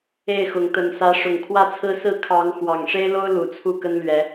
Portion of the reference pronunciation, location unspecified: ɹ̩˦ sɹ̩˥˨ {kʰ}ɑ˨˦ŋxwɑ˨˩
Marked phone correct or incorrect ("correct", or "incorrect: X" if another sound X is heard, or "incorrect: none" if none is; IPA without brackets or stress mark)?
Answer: correct